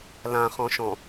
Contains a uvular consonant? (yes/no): yes